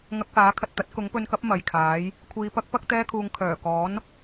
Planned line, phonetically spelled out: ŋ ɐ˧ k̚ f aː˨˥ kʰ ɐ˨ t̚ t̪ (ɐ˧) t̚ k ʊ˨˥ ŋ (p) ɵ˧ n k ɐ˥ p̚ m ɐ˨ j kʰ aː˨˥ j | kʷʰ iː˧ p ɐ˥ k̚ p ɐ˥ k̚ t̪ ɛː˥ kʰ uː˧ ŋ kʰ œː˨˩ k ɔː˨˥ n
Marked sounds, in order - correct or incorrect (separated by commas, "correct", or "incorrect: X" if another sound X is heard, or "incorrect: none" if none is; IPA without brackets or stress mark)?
incorrect: ɐ˨˥, correct